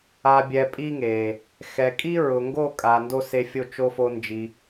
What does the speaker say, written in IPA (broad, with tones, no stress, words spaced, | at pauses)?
a˧bʲɛ˧pʼi˦ŋe˨ | xɛ˨kʼi˦ ɹʊ˨ŋɡo˦˨kʼa˨ ndo˦se˧fʲo˦˨ t͡ʃo˦fo˦nd͡ʒi˧